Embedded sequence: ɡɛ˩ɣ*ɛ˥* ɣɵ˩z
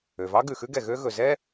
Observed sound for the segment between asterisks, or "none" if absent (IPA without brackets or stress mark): ø˥